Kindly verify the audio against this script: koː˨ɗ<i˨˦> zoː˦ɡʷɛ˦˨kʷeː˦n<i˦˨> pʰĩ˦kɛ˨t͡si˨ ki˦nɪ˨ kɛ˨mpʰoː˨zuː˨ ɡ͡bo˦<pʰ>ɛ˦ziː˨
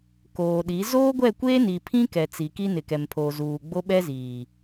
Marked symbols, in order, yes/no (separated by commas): yes, no, no